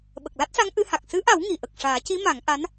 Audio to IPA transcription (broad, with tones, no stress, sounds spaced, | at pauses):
ɓ ə˨˩ k̚ l a˦˥ t̚ s a˧˥ ŋ ʔ ɨ˧˥ h a˨˩ k̚ s ɨ˧˥ ʔ a˨˩˦ w ŋ i˨˩˨ ʔ ə˨˩ k̚ ʂ aː˨˩˦ c i˧˥ m a˨˩˦ ŋ ʔ a˧˥ n